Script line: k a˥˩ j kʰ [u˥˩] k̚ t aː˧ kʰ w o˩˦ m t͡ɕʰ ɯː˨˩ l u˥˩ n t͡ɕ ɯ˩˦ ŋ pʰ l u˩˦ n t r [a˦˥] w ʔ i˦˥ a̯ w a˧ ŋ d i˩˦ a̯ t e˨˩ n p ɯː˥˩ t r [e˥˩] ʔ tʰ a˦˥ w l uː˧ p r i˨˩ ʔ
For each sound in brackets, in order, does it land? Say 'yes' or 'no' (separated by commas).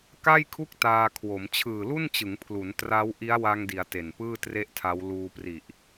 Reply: yes, yes, yes